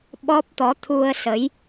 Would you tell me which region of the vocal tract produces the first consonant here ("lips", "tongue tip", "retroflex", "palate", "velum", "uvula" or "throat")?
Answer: lips